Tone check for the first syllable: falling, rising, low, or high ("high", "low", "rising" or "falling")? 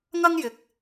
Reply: high